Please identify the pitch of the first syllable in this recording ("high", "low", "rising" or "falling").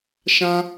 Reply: high